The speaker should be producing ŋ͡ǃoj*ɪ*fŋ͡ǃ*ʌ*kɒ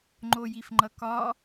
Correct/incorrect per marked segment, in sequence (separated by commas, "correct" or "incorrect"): incorrect, correct